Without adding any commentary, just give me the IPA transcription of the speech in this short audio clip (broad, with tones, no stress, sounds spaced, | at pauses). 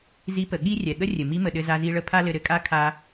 z i˧˥ p ə˩ ɠ i˥ rʲ ɛ˩ ɠ ə˥ rʲ ɘ˩ m i˧˥ m ə˩ ɗ ɘ˧ z a˧ z i˧ ɭ ə˥ pʰ a˥ l ɘ˧ ɾ ɘ˩˧ kʼ a˥ kʰ a˧